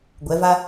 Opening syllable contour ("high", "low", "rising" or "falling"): rising